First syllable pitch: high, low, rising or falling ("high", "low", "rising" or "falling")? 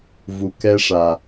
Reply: low